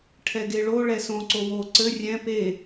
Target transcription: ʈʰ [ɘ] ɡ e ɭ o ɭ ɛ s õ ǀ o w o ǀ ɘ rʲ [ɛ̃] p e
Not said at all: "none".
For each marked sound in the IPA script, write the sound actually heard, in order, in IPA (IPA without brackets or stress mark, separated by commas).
ɛ, ɛ̃